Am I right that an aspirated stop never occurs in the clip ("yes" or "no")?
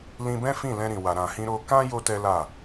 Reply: yes